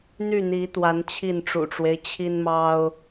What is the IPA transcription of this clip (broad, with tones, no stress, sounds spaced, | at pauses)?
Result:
n̪ y˥˨ n̪ i˨˦ t̪ w a˨˦ n t͡ɕʰ i˥˨ n ʈ͡ʂ ṵ˨˩ ʈ͡ʂ w e˦ ɪ̯ t͡ɕʰ i˦ n m ɑ˦ ʊ̯